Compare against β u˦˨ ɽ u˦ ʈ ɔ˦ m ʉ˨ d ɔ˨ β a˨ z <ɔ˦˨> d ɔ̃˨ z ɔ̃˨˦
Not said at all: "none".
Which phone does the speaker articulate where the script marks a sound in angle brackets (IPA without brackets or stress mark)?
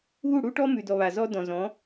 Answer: ɔ˦